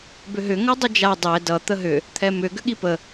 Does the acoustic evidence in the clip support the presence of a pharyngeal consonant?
no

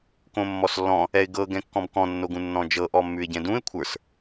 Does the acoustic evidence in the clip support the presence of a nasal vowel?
yes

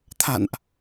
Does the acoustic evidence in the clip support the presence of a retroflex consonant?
no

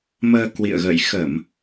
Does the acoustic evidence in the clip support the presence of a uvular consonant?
no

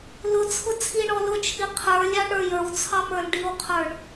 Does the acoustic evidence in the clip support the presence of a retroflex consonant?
yes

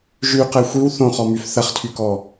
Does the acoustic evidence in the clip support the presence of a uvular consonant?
yes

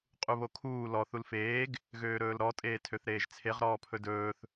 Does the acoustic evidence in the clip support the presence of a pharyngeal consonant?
no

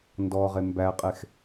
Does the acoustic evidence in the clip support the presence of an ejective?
yes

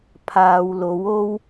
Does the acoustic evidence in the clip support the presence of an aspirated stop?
yes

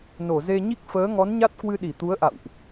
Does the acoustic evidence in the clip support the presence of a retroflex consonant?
no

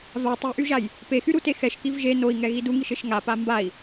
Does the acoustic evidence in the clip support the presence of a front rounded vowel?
yes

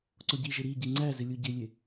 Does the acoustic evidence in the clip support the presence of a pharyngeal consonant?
no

